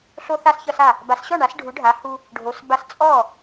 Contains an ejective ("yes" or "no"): yes